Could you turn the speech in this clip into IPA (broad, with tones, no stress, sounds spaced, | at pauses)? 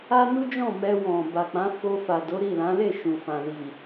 a˦ n u˦ d͡ʒ ɔ̃˦˨ m ɛ˧ w ɔ̃˨ b a˨ k͡p ã˨˦ f o˧ f a˨ d o˨˦ ɾ i˦˨ l ã˨˦ l e˦˨ ʃ ũ˨ f ã˨ l i˨